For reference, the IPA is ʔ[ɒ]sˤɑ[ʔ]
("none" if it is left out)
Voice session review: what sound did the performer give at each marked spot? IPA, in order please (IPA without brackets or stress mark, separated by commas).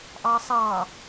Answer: ɑ, none